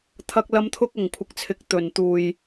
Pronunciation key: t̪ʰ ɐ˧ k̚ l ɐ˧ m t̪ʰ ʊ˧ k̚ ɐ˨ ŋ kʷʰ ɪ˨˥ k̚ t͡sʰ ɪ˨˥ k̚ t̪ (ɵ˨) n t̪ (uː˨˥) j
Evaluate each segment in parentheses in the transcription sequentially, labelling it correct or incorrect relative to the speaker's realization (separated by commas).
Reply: correct, incorrect